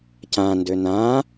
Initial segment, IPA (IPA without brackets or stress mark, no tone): c